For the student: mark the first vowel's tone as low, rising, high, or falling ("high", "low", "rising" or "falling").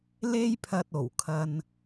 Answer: high